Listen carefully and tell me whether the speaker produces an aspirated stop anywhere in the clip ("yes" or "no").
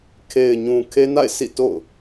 yes